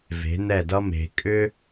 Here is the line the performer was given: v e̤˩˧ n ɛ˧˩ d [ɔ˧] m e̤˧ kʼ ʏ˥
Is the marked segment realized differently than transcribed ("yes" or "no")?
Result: yes